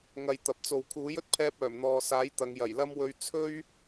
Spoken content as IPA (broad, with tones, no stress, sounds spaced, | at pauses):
ŋ ɐ˨ j t̪ ɐ˨ p̚ t͡s o˨ w kʰ uː˨˥ j ɵ˥ t̚ pʰ ɛː˧ p̚ œː˨˩ m n̪ ɔː˨ s aː˨˥ j t̪ ɐ˨˧ ŋ j ɐ˨˩ j l ɐ˥ m w ɵ˧ ɥ t͡sʰ ɵ˥ ɥ